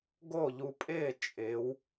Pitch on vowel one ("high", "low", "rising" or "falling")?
falling